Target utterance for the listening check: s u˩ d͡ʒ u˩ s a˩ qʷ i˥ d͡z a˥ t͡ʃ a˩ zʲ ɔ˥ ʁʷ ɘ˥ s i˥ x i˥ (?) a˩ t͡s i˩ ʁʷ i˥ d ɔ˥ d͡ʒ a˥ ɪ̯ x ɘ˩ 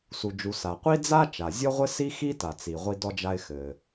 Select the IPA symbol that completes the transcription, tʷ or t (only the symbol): t